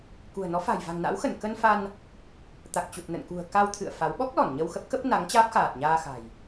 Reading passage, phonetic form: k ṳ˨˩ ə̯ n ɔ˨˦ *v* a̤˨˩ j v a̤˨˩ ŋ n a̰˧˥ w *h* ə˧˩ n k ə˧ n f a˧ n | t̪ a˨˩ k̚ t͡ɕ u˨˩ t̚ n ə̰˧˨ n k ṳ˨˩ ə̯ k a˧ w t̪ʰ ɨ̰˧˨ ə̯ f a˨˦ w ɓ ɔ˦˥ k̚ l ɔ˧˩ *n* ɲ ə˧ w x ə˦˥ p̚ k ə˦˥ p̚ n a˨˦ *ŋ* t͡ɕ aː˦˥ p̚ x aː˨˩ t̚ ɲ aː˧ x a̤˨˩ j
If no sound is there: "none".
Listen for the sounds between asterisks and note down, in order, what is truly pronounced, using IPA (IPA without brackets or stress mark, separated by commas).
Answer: f, x, n, ŋ